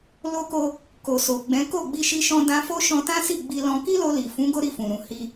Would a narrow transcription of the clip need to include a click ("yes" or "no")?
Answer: no